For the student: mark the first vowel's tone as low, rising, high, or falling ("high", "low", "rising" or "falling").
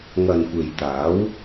low